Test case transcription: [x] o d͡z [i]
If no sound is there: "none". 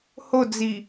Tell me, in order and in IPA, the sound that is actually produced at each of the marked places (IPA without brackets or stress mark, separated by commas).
h, i